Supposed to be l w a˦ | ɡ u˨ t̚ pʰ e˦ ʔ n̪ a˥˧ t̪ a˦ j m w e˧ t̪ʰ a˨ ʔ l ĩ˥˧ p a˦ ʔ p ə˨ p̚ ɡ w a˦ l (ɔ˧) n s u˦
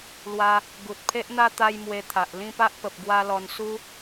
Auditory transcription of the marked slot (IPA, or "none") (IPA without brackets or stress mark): ɔ˧